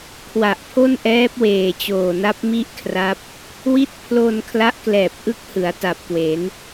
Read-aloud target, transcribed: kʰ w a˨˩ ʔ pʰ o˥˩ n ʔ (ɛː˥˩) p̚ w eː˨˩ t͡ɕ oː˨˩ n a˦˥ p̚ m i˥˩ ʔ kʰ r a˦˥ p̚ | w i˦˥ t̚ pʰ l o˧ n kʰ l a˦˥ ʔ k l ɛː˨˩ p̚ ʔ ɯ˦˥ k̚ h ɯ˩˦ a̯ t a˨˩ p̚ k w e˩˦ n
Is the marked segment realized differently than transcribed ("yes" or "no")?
yes